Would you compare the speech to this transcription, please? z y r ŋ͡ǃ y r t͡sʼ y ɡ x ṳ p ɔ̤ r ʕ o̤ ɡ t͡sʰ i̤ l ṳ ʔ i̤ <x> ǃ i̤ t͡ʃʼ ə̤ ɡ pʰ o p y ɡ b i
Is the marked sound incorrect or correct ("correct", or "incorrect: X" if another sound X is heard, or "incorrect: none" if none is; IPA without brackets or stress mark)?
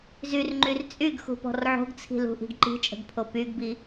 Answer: incorrect: ɡ